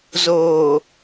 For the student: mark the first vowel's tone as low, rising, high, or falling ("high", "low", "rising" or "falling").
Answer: low